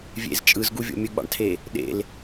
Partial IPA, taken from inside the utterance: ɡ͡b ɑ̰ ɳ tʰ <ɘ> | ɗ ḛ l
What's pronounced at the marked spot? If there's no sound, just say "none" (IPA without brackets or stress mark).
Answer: e